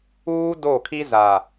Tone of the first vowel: high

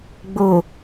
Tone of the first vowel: low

